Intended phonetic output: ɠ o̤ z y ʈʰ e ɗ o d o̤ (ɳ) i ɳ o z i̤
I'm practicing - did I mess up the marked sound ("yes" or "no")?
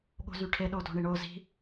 no